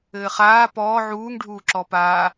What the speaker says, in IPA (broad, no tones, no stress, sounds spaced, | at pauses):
ɘː χ aː p ɔː ʕ uː ŋ ɖʱ uː ǁ ɔ p a